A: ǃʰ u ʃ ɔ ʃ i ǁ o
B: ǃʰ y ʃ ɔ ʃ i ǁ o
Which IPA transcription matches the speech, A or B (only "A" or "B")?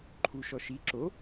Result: A